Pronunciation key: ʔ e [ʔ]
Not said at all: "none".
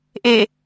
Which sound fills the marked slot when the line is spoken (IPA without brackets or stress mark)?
none